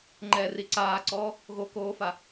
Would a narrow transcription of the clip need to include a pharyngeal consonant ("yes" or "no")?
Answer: no